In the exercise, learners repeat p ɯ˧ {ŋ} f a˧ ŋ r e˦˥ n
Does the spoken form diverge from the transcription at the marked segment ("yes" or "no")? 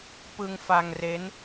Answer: no